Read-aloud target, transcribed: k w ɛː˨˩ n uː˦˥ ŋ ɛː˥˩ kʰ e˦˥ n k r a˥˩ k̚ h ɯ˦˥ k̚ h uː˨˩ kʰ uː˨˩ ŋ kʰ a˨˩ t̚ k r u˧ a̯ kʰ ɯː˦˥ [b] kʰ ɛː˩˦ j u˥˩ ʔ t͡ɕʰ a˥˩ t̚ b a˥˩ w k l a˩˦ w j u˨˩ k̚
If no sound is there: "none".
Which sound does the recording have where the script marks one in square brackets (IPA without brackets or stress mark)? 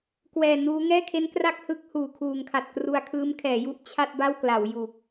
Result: m